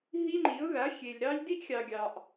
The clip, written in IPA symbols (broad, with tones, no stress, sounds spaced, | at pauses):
ɦ i˦ ŋ͡ǃ i˨˦ ʊ̯ ð a˨˦ xʲ e˨ lʲ ɾ ɑ˦ lʲ d i˦ ʔ xʲ ɑ˨ ɡʲ ɑ˨ ʔ